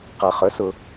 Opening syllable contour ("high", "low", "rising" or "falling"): low